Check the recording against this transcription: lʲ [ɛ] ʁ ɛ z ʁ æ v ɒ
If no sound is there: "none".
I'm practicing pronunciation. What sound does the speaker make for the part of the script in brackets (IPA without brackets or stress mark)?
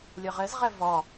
ɜ